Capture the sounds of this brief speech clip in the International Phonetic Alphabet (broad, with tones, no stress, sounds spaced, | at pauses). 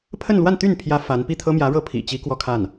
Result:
pʰ ə˥˧ n l w a˥˧ n t̪ y˥˩ n pʰ j ä˧˥ f a˧˥ n p i˥˩ t̪ʰ ɤ˥ m j ä˧˥ ɻ ɤ˥˩ pʰ ḭ˨˩ t͡ɕ i˧˥ k w ɔ˥˧ kʰ a˥˩ n